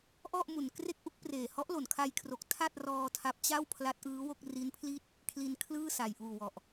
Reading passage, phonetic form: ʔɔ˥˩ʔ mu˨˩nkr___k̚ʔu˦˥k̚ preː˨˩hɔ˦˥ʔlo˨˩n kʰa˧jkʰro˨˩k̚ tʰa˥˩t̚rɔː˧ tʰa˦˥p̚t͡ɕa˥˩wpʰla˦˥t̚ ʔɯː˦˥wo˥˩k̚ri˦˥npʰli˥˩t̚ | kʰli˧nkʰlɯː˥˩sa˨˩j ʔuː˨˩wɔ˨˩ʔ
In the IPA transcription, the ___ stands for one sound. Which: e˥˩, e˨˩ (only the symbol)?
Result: e˥˩